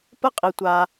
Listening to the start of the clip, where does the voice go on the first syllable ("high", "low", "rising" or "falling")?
falling